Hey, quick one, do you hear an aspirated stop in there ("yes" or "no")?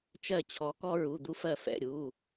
yes